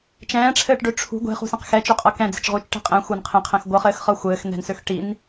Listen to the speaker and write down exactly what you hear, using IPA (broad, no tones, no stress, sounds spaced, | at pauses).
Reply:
t͡ʃ ɛ̃ː ʈ͡ʂʰ ɘː ʈ ɖ ø ʈ͡ʂʰ ṳ ɡʷ e̤ χ ṳ s ẽ q x ɛ t͡ʃ ø qʼ ɤ k ɛ̃ d͡z e̤ t͡ʃ ʁ u t͡ʃ ʈ e̤ qʼ ɛ̃ xʷ ɤ n qʰ ẽ qʰ ɛ̃ x ɡʷ ɤ χ ɘː x χ ɤ xʷ ɘː x n ɛ̤ n s ø x ʈ i n